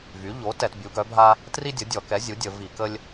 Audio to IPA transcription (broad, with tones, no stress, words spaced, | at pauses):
vy˩˥ʎo˩˥ tɛ˧˩˧tbʲu˩˥ɡœ˩˥bʱa˥ | tri˥dʲə˩˥dʲɔ˧˩˧kɛ˩˥ zʲu˩˥dʲə˧˩˧ vi˧˩˧kə˥lʲ